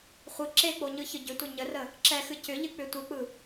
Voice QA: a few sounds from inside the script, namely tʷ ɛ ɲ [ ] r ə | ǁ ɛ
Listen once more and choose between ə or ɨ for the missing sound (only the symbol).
ə